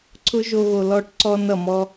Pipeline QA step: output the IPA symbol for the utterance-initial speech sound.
ǀʰ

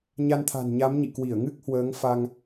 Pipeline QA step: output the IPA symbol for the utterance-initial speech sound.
ɲ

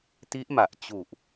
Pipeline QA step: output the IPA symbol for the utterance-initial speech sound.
t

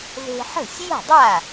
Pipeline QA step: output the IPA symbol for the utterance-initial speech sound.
ð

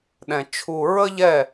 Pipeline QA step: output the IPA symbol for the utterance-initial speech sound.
ɗ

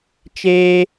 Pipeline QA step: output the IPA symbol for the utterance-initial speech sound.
t͡ʃ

